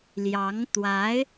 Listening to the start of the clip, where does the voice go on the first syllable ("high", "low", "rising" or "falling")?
rising